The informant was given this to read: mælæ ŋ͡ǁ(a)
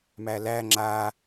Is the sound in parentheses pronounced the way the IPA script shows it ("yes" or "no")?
yes